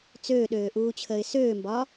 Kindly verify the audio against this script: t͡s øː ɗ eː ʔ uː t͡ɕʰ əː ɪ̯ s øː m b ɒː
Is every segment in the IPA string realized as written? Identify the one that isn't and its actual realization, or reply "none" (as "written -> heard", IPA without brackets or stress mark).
eː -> øː